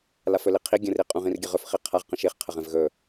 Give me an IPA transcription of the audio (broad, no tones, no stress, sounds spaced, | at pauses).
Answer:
l a f ɵ l i qʰ i ɡʲ ə̃ r i qʼ ũ ʁ ĩ r ɡʲ ə ʁ ɵ f χ i qʰ a ʁ q ə̃ ʃ i χ qʰ ə ʁ ɛ̃ v ɣ ɵ